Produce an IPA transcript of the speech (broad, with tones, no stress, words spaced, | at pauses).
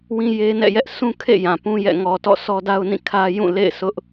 wĩ˦je˦nɛ̰˦˨jɛ˦ʔ sʰũ˦kʰḛ˦˨ jã˨pũ˦jɛ̰˦˨ ŋɔ˨ tɔ̰˦˨sʰɔ˦da˦ʊ̯nĩ˦˨ kʰä˦jũ˦˨ lḛ˦˨ɪ̯sʊ˦ʔ